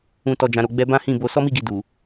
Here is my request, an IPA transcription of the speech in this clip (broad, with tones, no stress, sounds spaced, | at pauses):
ũ˨ t ɔ˨ d͡ʒ ã˨ ɾ o˨ ɡ͡b ɛ˧ b ã˦ h ĩ˦˨ b o˧ s ɔ˦ m i˦˨ ɡ i˨ d u˨